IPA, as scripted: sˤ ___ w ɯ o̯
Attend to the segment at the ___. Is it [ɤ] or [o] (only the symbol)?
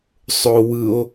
o